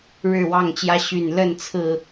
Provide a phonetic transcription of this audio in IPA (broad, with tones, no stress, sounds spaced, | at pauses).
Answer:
ɻ ɻ̩˥˨ w ɑ˥˨ ŋ t͡ɕ j ä˦ ɕ y˨˩ n l ə˥˨ n t͡sʰ ɹ̩˨˩